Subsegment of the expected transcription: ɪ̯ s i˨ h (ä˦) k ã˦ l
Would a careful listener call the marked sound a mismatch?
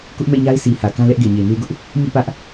yes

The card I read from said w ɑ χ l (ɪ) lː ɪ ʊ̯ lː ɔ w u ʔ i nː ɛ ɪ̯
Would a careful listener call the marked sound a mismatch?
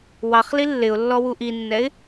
yes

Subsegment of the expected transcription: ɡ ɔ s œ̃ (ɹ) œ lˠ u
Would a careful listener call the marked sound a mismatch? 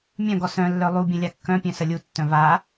yes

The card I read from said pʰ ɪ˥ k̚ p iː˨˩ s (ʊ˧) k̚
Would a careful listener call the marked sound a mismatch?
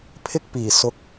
no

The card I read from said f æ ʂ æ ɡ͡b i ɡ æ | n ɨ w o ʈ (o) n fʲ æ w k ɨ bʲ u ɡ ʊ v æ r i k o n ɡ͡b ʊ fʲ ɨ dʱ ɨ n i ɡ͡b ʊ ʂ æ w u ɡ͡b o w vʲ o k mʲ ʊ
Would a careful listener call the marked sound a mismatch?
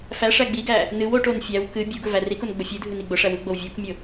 no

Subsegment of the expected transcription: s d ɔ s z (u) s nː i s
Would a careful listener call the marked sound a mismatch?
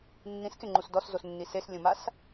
yes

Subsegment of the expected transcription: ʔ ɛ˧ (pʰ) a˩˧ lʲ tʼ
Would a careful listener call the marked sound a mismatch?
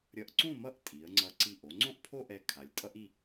yes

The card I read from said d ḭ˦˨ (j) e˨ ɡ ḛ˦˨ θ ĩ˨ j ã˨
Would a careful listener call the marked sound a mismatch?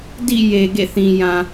no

